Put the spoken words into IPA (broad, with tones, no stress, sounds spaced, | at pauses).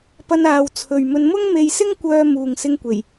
p ɐ˧ n aː˨ w t͡sʰ ɵ˨ ɥ m ɵ˧ n m ʊ˥ ŋ m e˧ j s ɪ˥ ŋ kʷ œː˧ m uː˨ ŋ s ɪ˧ ŋ kʷ e˨˩ j